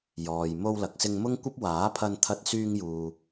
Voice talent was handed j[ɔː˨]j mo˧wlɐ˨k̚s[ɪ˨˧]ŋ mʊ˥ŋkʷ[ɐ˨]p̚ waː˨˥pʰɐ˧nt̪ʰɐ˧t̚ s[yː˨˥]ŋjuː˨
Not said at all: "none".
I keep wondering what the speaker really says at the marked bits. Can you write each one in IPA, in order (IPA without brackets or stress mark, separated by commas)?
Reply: ɔː˨, ɪ˧, ɐ˥, yː˧